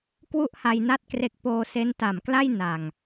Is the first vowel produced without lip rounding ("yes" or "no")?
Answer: no